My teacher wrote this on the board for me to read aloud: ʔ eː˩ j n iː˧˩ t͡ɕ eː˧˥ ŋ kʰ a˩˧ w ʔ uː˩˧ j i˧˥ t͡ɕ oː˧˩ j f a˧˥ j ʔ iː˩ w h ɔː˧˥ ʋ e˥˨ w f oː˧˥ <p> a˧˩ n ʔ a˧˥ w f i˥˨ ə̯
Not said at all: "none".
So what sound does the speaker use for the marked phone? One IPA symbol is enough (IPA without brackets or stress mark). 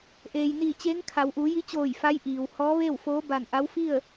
b